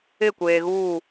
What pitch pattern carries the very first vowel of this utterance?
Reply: falling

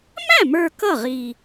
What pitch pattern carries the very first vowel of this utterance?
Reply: falling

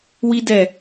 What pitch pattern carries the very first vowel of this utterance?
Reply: high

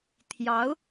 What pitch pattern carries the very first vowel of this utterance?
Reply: rising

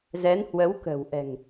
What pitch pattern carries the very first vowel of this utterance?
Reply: rising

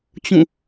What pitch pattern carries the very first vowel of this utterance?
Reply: falling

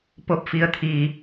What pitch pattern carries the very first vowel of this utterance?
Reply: rising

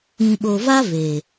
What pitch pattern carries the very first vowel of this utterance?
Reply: low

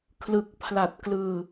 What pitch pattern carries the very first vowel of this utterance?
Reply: low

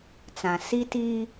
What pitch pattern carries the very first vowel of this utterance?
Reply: low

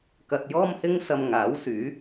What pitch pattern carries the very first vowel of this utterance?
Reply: low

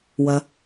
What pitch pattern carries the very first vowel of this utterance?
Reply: low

